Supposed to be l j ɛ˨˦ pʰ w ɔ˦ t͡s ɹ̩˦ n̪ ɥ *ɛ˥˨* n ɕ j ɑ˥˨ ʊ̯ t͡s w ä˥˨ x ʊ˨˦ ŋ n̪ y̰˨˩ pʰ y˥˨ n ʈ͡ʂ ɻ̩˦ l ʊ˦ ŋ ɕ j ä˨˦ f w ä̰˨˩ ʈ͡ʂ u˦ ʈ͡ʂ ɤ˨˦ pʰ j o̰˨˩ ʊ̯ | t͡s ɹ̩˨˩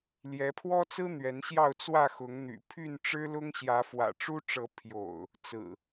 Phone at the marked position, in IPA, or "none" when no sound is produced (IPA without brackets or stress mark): ɛ˨˦